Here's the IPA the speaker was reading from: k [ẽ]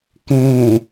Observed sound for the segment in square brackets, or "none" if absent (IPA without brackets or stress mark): ẽ